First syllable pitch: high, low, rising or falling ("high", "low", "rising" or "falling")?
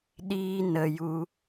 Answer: high